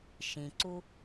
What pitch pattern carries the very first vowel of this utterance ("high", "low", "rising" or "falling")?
low